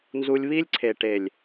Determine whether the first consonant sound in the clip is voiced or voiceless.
voiced